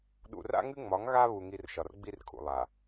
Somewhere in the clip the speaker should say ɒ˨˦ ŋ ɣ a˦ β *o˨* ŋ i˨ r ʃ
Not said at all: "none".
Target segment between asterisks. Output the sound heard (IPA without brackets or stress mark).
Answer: u˨